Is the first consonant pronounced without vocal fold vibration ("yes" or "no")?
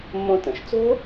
no